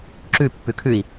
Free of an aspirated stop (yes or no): no